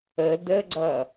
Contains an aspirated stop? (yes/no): no